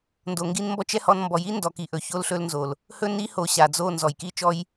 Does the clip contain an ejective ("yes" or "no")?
no